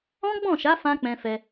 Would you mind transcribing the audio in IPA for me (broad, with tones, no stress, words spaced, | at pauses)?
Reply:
ɔ̃˦ ɡ͡bɔ̃˦˨ ʃa˨˦ fã˦k͡pɛ̃˧fɛ˧